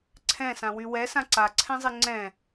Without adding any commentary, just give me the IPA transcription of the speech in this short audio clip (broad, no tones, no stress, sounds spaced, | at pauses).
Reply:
ǀʰ ɛ̃ s ã w y w ɛ s ã ǀ a ǀʰ ɛ̃ zˤ e ŋ͡ǀ ɛ̃